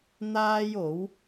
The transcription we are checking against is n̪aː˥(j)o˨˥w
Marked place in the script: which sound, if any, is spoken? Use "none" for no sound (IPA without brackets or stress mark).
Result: j